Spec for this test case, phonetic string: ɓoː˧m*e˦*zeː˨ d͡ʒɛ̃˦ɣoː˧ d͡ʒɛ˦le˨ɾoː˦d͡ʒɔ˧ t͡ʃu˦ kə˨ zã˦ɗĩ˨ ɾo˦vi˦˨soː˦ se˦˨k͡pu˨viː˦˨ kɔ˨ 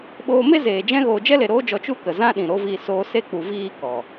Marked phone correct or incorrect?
correct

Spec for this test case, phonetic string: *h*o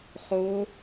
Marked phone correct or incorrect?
incorrect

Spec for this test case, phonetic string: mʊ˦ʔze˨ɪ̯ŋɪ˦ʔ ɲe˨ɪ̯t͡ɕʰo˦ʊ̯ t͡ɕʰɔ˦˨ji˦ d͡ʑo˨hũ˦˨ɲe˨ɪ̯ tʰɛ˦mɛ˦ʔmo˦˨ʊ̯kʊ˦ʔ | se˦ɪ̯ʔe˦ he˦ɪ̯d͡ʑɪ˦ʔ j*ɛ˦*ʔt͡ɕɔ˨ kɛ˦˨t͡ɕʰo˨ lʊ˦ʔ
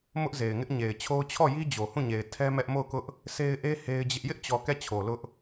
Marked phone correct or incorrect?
incorrect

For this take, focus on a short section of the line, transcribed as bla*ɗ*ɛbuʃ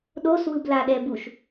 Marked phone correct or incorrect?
correct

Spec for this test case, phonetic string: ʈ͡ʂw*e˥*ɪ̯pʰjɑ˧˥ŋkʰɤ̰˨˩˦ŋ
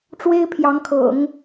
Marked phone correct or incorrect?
correct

